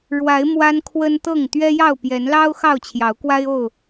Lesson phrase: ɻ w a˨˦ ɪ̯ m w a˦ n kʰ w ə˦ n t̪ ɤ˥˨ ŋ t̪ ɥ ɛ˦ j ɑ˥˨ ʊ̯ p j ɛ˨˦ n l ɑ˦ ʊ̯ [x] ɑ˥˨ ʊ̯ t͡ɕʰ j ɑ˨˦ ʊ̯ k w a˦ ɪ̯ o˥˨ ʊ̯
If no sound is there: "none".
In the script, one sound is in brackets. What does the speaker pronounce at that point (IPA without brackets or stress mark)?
x